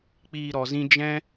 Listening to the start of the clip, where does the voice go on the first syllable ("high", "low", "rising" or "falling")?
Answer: low